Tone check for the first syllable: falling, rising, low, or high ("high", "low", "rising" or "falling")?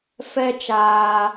high